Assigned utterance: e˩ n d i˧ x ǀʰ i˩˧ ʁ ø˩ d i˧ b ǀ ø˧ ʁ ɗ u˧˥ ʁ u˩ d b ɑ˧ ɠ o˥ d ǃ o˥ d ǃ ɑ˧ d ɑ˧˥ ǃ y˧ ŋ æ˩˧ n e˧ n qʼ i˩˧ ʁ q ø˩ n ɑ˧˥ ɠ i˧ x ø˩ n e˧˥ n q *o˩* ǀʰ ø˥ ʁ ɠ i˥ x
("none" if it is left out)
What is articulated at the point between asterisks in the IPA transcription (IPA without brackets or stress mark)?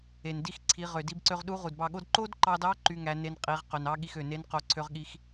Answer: o˧